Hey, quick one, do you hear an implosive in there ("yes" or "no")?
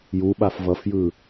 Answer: yes